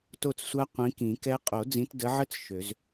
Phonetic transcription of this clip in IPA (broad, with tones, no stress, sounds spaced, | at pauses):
t o˥˩ t͡s sʷ a˦˥ qʷ ĩ˨˦ k ĩ˨˩˦ k ɛ˦˥ qʼ o˨˩˦ d͡z ĩ˨˦ t d ə˨˦ ʕ ə˦˥ t͡s ʃ ø˨˩˦ z